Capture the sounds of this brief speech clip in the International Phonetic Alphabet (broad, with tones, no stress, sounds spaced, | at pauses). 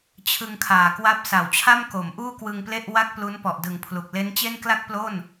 t͡ɕʰ ɯ˧ ŋ kʰ aː˨˩ k w a˦˥ p̚ s a˩˦ w t͡ɕʰ a˥˩ m k o˩˦ m ʔ uː˥˩ k w ɯ˧ ŋ p l e˥˩ ʔ w a˥˩ k̚ p l u˦˥ n p ɔ˨˩ ʔ d ɯ˨˩ ŋ pʰ l u˨˩ k̚ l e˦˥ n t͡ɕ e˥˩ n k l a˥˩ k̚ p l o˥˩ n